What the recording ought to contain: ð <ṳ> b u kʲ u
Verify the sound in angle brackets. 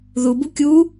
incorrect: u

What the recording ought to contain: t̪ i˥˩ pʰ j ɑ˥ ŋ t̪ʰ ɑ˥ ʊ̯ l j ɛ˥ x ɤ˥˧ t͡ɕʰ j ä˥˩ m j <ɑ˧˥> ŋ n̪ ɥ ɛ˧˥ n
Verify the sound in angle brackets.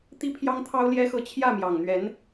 incorrect: ɑ˨˩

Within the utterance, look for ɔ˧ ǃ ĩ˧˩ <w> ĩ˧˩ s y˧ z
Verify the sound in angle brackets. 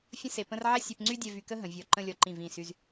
incorrect: v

